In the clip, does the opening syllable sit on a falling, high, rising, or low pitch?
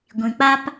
low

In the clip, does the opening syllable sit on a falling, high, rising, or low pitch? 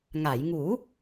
low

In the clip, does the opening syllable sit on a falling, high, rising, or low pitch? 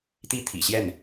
high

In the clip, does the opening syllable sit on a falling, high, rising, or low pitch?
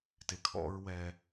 low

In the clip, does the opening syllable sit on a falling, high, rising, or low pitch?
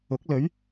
rising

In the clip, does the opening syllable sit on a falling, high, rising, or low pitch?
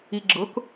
low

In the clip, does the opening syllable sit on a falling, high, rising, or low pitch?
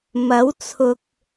rising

